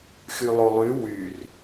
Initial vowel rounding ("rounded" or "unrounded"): rounded